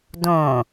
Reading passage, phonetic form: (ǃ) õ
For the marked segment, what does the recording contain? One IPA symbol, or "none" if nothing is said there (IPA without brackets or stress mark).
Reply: d